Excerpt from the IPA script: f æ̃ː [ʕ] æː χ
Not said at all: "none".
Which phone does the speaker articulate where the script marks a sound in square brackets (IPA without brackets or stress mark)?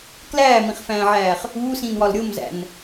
ʕ